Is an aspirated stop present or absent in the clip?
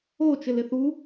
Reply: absent